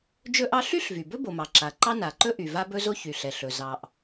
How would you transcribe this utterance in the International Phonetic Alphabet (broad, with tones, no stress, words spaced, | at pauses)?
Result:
d͡ʒɵ˥ʔɑ˥ ɬy˥ɬvy˩ bɵ˥bo˩ mɑ˩ǁa˩ǃɑ˥ na˩ǃɵ˥ʔy˩ va˥bɵ˥zo˥ çy˩ɬɛ˩ ɬɵ˩ zɑ˩ʔ